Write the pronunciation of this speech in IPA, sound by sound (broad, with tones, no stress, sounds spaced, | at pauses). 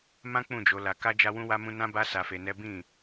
m ã˦ k͡p ũ˦˨ d͡ʒ o˨˦ l a˧ k a˦ d͡ʒ a˦ w ũ˦ w a˦ m ũ˦ n ã˦ b a˦ s a˧ f e˧ n ɛ˦ b ĩ˦˨